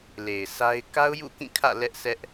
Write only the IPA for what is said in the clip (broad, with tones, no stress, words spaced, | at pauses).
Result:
le˨ɪ̯sa˦ɪ̯ ka˦ʊ̯jṵ˦˨kĩ˦˨kʰä̰˦˨ lɛ˦ʔsɛ˦ʔ